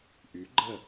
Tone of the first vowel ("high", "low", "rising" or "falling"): rising